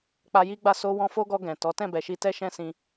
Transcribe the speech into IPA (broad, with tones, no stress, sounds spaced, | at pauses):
k͡p a˧ j i˦ ɡ͡b a˦˨ s o˧ w ɔ̃˧ f o˦ ɡ ɔ˧ ɡ ɛ̃˨ t ɔ˨˦ t ɛ̃˦˨ b ɛ˨ ʃ i˧ t ɛ˦ ʃ ɛ̃˦ s ĩ˧